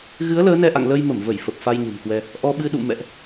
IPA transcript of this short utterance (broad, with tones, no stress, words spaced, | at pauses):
ɣɨ˨˦ə̯ ləː˨˦nɛ˧ʔa̰˧˨ŋ lə˧jmə˧˩mvə˧˩j fə˨˩p̚fa˧j ɲə̤˨˩mkwɛ˧ | ʔɔ˧ɓɨ˧ɗṵ˧˨ mɛ̰˧˨ʔ